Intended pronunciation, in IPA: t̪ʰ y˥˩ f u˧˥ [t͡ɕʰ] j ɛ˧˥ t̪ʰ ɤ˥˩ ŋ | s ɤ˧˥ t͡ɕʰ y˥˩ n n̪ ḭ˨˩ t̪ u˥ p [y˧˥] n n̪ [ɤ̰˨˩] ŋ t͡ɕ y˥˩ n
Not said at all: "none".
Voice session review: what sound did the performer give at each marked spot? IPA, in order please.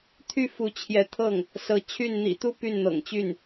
t͡ɕʰ, y˥˩, ɤ̰˨˩

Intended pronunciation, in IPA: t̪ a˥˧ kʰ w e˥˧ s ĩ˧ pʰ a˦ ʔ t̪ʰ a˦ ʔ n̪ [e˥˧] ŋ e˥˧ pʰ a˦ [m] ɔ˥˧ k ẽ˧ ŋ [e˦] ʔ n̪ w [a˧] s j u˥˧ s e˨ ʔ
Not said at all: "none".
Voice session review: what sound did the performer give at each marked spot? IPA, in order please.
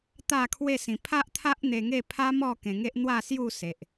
e˧, m, e˦, a˥˧

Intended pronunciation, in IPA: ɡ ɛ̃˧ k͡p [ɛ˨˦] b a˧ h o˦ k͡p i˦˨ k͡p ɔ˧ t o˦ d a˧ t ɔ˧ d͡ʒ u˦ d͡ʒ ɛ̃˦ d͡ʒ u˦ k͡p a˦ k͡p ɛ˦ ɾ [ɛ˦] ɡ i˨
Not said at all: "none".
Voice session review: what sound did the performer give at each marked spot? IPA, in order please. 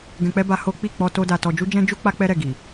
ɛ˦, ɛ˦˨

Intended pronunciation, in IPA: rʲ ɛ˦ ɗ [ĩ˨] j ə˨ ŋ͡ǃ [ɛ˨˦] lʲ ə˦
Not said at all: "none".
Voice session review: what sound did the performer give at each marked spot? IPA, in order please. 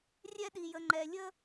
i˨, ɛ˨

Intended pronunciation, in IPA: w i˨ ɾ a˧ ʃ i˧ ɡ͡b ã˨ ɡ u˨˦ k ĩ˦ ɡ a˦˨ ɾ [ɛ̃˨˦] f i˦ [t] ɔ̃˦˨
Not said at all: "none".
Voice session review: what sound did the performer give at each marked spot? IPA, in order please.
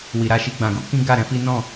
ɛ̃˨˦, n

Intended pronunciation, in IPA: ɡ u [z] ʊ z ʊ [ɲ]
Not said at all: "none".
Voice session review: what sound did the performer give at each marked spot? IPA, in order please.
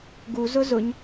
z, ɲ

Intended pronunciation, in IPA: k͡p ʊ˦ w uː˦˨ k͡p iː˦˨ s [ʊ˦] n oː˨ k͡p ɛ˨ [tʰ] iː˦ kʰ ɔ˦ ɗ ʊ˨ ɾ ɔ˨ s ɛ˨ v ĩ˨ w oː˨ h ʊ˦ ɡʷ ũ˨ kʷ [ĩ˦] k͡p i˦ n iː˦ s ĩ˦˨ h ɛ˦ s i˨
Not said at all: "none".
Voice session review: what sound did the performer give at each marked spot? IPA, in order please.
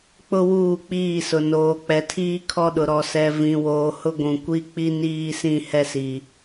ʊ˨, tʰ, i˦

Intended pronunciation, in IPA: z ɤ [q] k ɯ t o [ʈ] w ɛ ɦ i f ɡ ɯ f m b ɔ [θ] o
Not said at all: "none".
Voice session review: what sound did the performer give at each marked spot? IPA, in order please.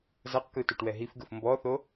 q, ʈ, θ

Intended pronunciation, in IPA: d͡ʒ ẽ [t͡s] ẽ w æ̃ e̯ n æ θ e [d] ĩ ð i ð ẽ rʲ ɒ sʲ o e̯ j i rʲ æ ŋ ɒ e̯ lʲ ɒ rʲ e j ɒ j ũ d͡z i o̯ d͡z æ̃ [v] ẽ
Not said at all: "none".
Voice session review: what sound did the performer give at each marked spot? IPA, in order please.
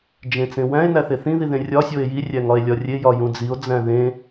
t͡s, θ, ð

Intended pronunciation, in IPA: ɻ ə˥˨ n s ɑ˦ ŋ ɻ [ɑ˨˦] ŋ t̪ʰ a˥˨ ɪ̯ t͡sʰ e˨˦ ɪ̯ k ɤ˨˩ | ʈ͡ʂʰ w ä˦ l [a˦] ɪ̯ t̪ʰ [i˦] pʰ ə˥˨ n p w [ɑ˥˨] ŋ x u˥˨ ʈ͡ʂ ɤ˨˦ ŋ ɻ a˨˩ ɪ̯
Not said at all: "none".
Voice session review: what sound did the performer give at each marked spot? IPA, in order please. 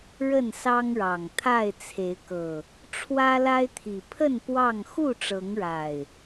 ɑ˨˩, a˦, i˨˩, ɑ˥˨

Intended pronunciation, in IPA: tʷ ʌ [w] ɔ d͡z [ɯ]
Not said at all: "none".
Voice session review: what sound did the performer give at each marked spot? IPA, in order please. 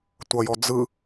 j, ɯ

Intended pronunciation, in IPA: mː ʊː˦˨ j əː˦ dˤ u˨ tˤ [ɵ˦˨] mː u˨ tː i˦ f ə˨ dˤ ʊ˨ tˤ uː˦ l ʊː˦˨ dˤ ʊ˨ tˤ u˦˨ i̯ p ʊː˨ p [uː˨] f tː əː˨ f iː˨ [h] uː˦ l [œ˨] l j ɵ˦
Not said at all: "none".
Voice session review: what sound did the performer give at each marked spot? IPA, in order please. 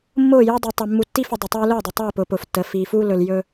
ɵ˨, ʊː˨, f, ɵ˨

